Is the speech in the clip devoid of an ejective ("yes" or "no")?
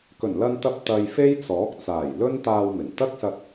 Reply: yes